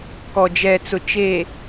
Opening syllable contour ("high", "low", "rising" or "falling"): low